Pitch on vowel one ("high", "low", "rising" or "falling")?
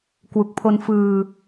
low